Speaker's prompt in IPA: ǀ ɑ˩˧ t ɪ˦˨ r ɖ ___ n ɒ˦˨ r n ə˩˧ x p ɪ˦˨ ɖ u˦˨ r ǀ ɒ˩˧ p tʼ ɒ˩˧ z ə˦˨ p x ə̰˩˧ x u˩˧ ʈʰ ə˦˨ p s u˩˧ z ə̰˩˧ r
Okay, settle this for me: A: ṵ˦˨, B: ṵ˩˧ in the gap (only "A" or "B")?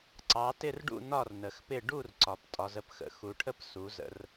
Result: A